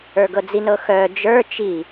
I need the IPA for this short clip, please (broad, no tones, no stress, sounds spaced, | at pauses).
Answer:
ə˞ ɡ ɤ d͡z i n ɤ x œ d͡ʒ ə˞ t͡ʃ i